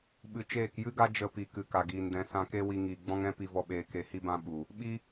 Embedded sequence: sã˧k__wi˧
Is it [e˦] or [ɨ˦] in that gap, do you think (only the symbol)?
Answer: e˦